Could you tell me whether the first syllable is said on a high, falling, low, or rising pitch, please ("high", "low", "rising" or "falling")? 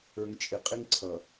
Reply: low